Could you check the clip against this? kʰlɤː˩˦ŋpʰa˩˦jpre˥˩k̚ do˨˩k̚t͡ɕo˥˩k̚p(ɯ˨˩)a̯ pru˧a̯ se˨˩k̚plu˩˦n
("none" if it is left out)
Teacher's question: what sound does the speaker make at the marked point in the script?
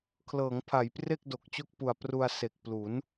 u˨˩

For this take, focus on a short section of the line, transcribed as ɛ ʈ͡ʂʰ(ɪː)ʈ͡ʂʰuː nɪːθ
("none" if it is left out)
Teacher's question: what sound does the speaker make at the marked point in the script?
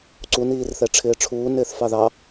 ɪː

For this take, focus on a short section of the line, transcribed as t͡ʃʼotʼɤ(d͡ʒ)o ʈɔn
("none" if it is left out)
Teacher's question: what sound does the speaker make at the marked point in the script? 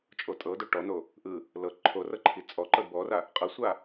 d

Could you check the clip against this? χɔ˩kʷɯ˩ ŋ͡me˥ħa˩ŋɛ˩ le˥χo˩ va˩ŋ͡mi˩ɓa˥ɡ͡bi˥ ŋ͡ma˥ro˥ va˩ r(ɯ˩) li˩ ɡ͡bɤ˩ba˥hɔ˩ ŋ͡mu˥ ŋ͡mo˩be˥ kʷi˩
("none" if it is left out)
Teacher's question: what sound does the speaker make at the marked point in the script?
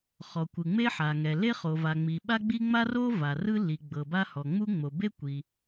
ɯ˥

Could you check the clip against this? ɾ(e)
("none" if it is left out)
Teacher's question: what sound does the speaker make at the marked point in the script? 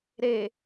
e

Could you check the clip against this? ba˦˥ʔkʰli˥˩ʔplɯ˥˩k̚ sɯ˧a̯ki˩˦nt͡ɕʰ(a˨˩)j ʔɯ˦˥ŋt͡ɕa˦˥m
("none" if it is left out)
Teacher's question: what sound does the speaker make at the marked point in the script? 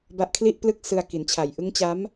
a˨˩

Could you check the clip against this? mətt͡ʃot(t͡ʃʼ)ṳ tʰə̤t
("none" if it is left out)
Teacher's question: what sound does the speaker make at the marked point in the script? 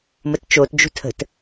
d͡ʒ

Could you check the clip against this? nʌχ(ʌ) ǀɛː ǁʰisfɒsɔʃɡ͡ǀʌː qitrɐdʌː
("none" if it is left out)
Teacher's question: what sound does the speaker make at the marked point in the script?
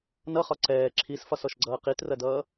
ɒ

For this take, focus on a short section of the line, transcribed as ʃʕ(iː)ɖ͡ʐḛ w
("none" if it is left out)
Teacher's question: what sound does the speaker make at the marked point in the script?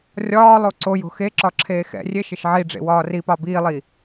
i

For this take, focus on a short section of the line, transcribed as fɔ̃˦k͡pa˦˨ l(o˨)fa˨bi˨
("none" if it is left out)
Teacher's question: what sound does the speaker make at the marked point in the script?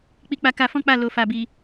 o˨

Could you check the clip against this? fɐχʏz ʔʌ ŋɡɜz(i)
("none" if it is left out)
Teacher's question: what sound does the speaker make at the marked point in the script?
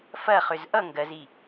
i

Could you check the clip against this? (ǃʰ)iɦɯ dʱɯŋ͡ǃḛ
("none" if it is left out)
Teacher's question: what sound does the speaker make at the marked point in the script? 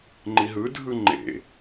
ŋ͡ǃ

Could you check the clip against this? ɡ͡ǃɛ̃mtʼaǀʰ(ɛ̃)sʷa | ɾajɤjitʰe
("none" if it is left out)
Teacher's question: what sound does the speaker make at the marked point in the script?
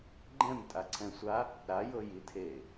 ɛ̃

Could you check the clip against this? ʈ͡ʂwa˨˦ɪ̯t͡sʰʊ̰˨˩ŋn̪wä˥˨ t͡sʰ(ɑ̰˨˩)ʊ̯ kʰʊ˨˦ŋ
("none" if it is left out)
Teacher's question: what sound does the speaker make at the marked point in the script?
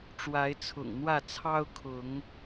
ɑ˦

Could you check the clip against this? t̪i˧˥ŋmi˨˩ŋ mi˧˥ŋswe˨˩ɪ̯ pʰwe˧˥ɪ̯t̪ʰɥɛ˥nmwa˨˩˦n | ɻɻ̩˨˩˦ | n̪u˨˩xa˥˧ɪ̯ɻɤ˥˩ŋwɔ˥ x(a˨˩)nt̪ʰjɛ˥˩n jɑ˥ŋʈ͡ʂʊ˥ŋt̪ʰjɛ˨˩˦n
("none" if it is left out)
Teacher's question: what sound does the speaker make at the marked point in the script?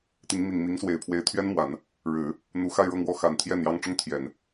a˨˩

